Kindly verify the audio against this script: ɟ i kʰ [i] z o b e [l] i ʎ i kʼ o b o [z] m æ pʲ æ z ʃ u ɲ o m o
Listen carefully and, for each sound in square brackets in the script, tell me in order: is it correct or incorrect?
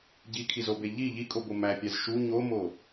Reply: correct, incorrect: ʎ, incorrect: none

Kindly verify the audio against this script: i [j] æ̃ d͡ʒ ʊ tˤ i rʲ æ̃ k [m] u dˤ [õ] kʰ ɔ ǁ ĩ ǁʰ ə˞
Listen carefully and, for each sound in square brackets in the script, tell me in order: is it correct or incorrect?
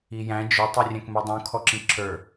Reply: correct, correct, incorrect: ũ

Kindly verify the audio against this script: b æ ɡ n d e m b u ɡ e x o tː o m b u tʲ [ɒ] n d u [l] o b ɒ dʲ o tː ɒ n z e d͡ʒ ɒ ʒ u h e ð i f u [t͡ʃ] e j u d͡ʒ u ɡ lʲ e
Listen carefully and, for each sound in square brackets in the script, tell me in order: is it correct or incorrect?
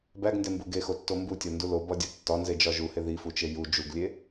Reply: correct, correct, correct

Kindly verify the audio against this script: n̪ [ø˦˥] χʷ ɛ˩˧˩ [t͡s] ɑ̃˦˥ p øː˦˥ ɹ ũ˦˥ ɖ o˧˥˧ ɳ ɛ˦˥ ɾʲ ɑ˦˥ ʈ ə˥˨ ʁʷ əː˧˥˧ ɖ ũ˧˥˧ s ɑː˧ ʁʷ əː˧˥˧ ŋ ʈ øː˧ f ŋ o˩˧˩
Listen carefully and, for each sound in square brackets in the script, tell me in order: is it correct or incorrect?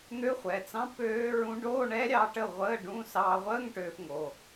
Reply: correct, correct

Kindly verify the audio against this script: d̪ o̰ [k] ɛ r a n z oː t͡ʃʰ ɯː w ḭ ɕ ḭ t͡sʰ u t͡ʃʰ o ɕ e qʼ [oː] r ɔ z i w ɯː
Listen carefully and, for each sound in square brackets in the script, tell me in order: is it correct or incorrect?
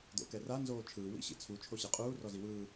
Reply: correct, incorrect: uː

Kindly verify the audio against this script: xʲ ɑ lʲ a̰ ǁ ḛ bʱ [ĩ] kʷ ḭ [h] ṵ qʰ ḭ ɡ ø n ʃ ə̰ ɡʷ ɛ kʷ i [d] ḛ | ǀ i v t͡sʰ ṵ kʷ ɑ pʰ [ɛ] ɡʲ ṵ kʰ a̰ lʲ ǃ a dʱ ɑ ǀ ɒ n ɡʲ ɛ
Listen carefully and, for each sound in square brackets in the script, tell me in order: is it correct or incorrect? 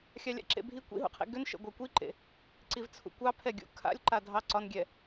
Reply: incorrect: i, incorrect: ɦ, incorrect: ǃ, correct

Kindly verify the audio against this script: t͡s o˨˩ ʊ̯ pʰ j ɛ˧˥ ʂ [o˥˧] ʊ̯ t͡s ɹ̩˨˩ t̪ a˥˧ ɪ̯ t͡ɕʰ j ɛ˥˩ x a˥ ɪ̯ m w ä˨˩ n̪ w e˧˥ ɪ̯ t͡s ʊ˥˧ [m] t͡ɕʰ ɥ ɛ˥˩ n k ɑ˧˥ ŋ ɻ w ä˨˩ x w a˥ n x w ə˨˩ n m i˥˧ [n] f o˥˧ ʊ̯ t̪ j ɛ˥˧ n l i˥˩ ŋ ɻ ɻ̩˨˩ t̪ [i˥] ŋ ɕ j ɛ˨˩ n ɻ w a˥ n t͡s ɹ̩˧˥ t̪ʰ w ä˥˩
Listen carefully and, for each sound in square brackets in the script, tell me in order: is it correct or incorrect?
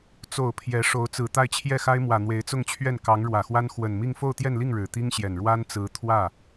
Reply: incorrect: o˧˥, incorrect: ŋ, incorrect: ŋ, correct

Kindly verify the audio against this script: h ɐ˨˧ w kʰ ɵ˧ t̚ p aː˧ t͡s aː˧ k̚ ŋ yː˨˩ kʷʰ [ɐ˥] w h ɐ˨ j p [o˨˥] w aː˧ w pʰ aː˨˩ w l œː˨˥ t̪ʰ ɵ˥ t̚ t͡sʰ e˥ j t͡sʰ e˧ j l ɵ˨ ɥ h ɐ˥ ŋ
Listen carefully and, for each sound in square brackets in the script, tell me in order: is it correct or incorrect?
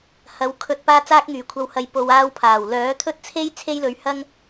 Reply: incorrect: ɐ˨, incorrect: o˨

